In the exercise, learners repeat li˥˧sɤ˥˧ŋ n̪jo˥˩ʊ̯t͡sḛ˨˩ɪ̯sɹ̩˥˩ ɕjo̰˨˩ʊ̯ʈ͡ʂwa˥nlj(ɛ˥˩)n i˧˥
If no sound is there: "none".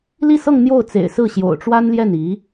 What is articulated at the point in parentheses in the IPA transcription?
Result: ɛ˥˩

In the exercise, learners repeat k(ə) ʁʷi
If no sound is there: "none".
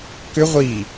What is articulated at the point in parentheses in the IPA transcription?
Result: ʏ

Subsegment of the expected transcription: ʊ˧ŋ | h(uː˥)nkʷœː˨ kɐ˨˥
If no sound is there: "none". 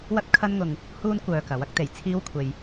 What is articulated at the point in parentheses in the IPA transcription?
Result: uː˥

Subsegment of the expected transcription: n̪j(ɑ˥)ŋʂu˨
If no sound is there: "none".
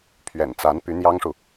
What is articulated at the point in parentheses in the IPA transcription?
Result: ɑ˥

